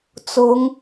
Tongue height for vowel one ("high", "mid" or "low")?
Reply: high